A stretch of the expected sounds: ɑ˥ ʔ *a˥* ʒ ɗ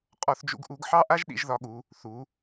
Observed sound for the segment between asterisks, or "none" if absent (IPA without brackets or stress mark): a˥